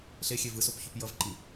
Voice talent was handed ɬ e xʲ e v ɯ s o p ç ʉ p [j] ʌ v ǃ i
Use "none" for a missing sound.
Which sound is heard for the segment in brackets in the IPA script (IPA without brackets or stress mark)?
j